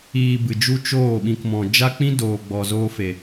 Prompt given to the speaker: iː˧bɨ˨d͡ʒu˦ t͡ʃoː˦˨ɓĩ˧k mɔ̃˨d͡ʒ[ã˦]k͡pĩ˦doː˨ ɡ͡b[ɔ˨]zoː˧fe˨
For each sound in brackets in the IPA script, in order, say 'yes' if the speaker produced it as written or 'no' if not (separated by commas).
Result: no, yes